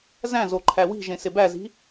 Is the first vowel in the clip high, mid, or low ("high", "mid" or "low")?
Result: low